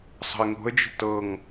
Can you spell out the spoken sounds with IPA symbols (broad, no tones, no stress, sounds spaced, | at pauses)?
sˤ ə̤ ɪ̯ ŋ o̤ ə̯ d͡ʒ ə̤ t ɤ ŋ